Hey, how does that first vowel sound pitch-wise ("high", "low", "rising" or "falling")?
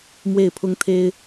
falling